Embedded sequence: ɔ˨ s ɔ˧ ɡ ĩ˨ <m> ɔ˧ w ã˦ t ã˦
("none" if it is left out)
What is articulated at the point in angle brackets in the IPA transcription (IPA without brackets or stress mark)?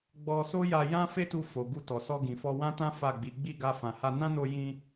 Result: f